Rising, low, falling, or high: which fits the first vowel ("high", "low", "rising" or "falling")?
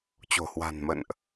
low